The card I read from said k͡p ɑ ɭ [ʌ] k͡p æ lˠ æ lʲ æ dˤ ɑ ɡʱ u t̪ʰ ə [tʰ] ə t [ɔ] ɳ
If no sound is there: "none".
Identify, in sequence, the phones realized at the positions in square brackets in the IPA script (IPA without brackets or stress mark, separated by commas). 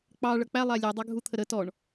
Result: ʌ, ɾ, ɔ